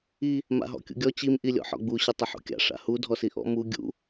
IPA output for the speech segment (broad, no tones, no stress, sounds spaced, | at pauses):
i | m a̰ ɦ ɔ̰ kʲ ṵ ɡʲ ɔ t͡ɕ i m ʔ i lʲ ɔ̰ ħ ɔ̰ ɡ͡b u ɕ ɪ tˤ ɪ ħ ṵ kʲ a̰ ʂ a̰ h u dʱ ɔ s i ʔ ɔ̰ m u ɡʲ ṵ